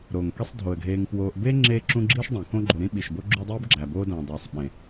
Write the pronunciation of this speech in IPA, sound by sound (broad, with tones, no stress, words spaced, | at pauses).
ɾo˩ŋke˦sˤ dʱo˩ə̯ɡʱeː˨ŋpwoː˨ʔ be˥ ŋ͡ǁeː˦ǁũ˦ɡ͡ǁiː˥ʃdˤẽ˩ kõ˦ɡ͡ǃo˨ɾĩ˥ ɓi˩ʃbo˥ɡ͡ǁu˦ dˤuː˥bɡ͡ǁæ˩boː˦dæ̃˩ dˤoː˩sˤ ɓẽ˩